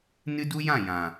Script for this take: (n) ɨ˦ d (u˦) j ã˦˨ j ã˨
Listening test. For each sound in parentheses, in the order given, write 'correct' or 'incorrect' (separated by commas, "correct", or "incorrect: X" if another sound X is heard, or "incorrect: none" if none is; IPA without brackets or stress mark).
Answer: correct, correct